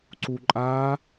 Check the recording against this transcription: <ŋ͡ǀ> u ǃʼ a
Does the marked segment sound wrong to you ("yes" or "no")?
yes